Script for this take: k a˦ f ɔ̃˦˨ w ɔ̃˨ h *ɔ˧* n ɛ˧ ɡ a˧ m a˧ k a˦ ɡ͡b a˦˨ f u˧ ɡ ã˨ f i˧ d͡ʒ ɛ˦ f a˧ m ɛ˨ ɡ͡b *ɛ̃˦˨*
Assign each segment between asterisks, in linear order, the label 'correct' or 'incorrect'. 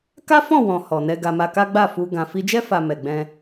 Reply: incorrect: ɔ˨, incorrect: ɛ̃˧

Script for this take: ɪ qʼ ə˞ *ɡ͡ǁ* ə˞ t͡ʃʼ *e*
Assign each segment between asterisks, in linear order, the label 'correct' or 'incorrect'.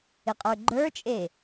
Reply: incorrect: ɡ͡ǃ, correct

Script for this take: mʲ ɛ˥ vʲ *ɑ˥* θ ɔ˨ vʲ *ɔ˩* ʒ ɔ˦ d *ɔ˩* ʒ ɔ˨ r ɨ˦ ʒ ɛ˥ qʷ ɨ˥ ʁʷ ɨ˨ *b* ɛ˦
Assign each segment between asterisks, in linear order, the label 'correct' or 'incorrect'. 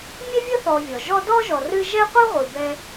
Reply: incorrect: ə˥, correct, incorrect: ɔ˥, correct

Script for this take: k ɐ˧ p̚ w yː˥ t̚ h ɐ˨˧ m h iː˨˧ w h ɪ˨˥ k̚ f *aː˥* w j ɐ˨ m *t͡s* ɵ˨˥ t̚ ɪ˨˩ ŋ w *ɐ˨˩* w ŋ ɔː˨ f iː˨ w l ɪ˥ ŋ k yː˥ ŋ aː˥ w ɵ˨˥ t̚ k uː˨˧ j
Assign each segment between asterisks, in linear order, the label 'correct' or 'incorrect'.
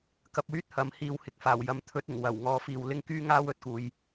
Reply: incorrect: aː˨˩, incorrect: t̪ʰ, correct

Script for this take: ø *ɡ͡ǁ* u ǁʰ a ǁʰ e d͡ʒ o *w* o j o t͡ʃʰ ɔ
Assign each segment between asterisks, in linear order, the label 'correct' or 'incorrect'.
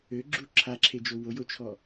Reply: correct, correct

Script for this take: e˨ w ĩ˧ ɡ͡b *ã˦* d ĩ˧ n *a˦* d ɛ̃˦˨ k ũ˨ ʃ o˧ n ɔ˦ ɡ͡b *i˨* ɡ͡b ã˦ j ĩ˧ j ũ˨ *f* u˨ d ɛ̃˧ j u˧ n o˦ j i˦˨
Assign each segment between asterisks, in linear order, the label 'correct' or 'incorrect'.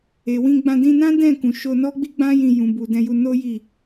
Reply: incorrect: ã˧, incorrect: ã˦, incorrect: i˦, incorrect: b

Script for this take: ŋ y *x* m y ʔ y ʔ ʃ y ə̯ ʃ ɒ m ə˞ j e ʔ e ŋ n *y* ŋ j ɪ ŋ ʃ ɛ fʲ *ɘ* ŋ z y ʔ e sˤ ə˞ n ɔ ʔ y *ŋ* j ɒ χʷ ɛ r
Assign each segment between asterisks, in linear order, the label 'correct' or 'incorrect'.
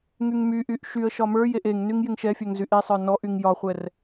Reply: incorrect: ŋ, correct, incorrect: ɛ, correct

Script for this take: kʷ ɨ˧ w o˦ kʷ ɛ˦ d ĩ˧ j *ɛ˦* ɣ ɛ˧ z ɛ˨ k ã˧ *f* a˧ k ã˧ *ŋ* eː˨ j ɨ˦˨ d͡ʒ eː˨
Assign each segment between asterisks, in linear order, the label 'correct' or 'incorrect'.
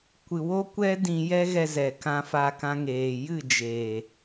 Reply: correct, correct, correct

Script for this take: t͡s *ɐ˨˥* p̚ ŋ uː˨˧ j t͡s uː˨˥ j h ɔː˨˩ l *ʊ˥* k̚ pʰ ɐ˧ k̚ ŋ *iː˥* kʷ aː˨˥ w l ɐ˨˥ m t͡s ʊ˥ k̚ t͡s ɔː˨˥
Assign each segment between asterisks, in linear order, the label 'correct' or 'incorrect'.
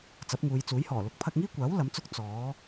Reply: correct, incorrect: ʊ˨˥, correct

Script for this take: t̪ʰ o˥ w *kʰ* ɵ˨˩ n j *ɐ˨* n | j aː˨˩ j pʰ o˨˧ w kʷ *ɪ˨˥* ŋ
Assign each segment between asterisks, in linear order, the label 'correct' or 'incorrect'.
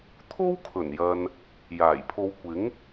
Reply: correct, correct, correct

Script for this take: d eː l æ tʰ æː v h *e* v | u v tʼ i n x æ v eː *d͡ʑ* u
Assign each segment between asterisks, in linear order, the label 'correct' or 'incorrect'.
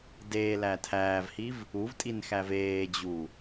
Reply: incorrect: i, correct

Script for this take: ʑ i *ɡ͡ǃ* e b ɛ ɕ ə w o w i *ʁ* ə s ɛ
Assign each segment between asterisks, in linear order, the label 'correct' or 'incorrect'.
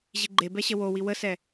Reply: correct, incorrect: w

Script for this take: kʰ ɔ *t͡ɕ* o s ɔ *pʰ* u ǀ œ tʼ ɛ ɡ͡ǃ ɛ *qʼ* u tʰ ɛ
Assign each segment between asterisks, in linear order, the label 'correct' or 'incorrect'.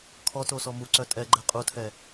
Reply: incorrect: t, incorrect: m, correct

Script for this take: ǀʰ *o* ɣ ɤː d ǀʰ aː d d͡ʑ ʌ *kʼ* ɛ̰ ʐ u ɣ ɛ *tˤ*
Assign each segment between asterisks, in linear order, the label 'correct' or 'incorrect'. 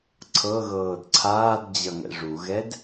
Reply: incorrect: ɤ, incorrect: ŋ, incorrect: d

